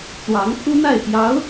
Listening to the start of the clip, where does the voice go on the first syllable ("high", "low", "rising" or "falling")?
rising